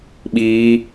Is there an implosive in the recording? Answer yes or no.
yes